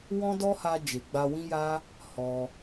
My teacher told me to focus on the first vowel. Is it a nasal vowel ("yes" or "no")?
yes